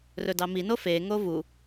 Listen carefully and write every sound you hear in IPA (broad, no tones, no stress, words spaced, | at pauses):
rɵdɑmino feŋo vu